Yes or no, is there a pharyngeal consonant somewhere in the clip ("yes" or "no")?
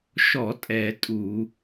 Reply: no